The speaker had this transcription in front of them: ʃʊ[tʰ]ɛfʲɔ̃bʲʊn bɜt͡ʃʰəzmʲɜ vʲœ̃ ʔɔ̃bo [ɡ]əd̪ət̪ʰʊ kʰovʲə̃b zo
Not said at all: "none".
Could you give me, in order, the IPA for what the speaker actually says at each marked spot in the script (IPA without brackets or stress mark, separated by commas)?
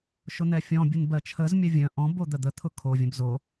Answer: n̪, d̪